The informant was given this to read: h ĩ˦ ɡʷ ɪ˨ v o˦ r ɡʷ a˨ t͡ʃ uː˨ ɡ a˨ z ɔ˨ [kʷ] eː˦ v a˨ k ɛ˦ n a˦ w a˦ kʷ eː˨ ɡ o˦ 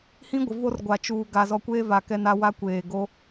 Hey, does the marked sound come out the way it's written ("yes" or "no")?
yes